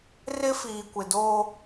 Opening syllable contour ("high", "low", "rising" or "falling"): high